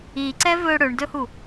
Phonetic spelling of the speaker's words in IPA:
i ǀ ɛ v ɵ ɽ ɵ ɳ d ɵ h u

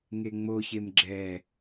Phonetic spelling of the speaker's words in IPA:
ŋ e ŋ͡m o ç e m ɡ͡ǁ ɛ

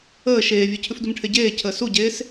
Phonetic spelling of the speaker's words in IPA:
əː ʃ eː vʲ ʉ cʰ ʉ f d u m ʈʰ e ɟ eː cʰ əː s u ɟ eː s

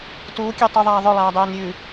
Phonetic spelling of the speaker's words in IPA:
t uː kʲ ɛ tˤ ʉ ðˤ aː ðˤ ɵ lˠ aː dˤ ɛː n ɾʲ ʉ

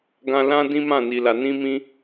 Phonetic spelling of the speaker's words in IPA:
ɡ ã˧ l ã˦ d ĩ˦ m ã˦˨ n i˨ l a˨ n ĩ˧ m ĩ˧

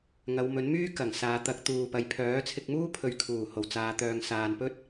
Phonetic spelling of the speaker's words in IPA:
ŋ ɐ˨˧ w m ɵ˨˥ n m yː˥ k ɐ˨˩ ŋ s aː˨˧ t̪ ɐ˨˥ k̚ t̪ uː˨ p ɐ˨ j pʰ œː˨˥ t͡sʰ ɪ˧ k̚ m uː˥ pʰ ɵ˨ ɥ kʰ uː˨˩ h o˨˩ w t͡s aː˨˧ t̪ œː˨ ŋ s aː˨ n p ɵ˥ t̚

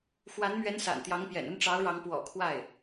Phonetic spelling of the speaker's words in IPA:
x w a˧˥ n m ɥ ɛ˧˥ n s a̰˨˩ n t̪ j ɑ˧˥ ŋ p j ɛ̰˨˩ n ə˥˩ n ʈ͡ʂ ɑ˧˥ ʊ̯ ɻ ɑ˧˥ ŋ p w ɔ̰˨˩ kʰ w a˥˩ ɪ̯

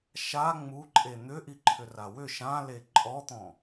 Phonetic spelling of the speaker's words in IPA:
ʃ a ŋ͡m u ǃʼ e n̪ ʏ ʔ i ǃʰ ʏ r a w ʏ ʃ ã l e ǃʼ ɔ t̪ ɔ̃

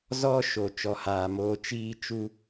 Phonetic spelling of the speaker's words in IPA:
z ɔ˦ ʃ o˨ t͡ʃ ɔ˨ h aː˨ m oː˧ t͡ʃ iː˧ t͡ʃ u˧

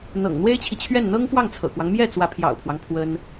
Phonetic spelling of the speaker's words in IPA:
n̪ ɤ̰˨˩ ŋ n̪ w e˥ ɪ̯ t͡ɕʰ i˨ t͡ɕʰ ɥ ɛ˥˩ n n̪ ɤ˥ ŋ k w ɑ˥˩ ŋ t͡sʰ ɤ̰˨˩ k w ɑ˦ ŋ m j ɛ˥˩ t͡s w ä˧˥ pʰ j ɑ̰˨˩ ʊ̯ pʰ w ɑ˦ ŋ pʰ w ə˥ n

